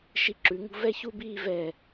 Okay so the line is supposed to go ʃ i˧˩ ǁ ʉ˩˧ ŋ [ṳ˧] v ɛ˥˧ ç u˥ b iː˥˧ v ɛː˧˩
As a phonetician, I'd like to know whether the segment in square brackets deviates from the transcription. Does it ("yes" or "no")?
no